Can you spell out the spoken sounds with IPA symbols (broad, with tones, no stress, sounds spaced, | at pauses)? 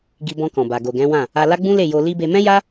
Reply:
ɡ i˧ b ɔ̃˧ k ɔ̃˨ b a˨ ɡ o˨ ɡ ɛ̃˨˦ w ã˦˨ | a˧ l a˦ ɡ͡b ũ˦ l e˦˨ j o˧ l i˦ b e˧ m ɛ̃˦ j a˦